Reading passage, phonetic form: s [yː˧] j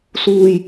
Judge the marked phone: incorrect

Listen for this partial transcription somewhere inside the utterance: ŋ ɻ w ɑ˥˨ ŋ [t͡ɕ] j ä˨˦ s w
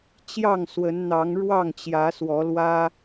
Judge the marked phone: correct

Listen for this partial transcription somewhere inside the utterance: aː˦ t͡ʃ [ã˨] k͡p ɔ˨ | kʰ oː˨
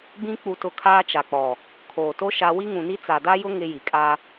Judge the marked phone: incorrect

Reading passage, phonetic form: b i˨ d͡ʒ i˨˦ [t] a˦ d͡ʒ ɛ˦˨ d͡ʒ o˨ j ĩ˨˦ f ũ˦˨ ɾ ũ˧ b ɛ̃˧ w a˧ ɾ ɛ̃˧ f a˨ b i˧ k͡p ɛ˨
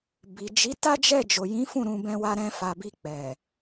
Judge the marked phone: correct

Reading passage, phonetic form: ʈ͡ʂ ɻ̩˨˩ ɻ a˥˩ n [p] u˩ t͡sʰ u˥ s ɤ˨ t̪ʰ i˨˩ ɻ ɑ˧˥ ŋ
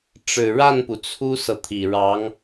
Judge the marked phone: correct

